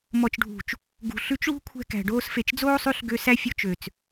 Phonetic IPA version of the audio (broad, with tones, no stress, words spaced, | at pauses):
mɔ˨t͡ʃɖʱṳ˨t͡ʃ | ɡṳ˨ɬʉ˧t͡ʃ ɭṳ˦kʷʰɛ̤˧ kæ̤˨ ɖoː˧sfe˨t͡ʃd͡zoː˦sˤʉ˧ɬ ɡø˧sæ˦fʲo˧ t͡ʃø˨t͡s